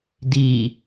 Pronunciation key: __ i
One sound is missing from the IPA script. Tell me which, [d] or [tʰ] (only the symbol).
d